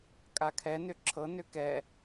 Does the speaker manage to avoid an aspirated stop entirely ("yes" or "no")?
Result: no